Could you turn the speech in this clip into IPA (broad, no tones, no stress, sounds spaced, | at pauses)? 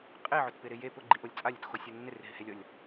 qʼ e ʕ ʊ t p ɪ ɾ ɪ j e p ʊ ɡ͡ǃ i ʔ o lʲ t͡sʼ a lʲ ʊ t x o sʲ o nː ɪ r ɦ ɪ h e lʲ ɔ lʲ